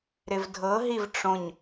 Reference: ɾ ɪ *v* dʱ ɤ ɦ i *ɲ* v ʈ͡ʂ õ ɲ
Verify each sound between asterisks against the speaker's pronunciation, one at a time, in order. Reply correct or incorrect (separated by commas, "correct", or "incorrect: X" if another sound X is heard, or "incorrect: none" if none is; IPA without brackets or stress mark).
correct, incorrect: none